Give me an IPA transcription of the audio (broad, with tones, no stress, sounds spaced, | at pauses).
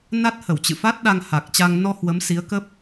n a˦˥ t̚ h ə˧˩ w t͡ɕ ɨ̰˧˨ f a˦˥ t̚ ɗ a˧ ŋ h a˨˩ k̚ t͡ɕ a˧ ŋ n ɔ˧ h w ə˨˦ m s i˨˦ ə̯ k ə˦˥ p̚